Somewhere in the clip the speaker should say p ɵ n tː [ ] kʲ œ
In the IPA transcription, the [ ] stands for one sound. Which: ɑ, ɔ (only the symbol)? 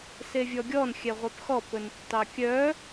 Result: ɑ